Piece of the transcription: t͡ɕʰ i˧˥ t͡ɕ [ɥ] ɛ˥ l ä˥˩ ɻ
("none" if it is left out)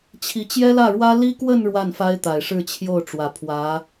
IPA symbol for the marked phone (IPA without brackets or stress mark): j